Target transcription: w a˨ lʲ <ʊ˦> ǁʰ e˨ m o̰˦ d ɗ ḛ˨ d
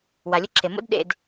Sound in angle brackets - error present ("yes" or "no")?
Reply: no